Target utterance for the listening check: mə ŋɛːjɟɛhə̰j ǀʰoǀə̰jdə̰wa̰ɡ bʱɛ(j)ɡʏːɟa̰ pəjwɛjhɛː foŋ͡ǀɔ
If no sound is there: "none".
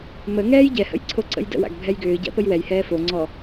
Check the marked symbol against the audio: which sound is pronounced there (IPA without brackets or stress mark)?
j